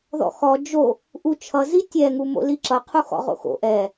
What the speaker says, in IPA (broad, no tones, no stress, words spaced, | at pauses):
ðɔ̰xɔ d͡ʒo | ʔut͡ʃʰʌ zitʲɛ ŋumo̰liǁʌ qʰuxɔ̰ʁo̰xo̰ ʔɛ